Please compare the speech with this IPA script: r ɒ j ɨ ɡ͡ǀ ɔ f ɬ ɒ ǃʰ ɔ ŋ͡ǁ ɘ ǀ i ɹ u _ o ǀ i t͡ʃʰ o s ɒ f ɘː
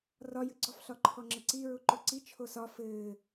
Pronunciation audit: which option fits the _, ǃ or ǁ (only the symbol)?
ǃ